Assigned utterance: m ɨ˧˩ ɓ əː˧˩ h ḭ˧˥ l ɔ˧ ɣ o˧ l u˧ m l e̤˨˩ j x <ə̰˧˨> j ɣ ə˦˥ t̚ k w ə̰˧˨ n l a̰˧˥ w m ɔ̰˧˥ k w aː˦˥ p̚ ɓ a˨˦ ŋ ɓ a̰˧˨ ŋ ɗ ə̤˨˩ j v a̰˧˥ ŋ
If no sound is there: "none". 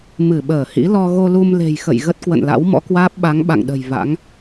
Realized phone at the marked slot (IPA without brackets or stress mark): ə̰˧˨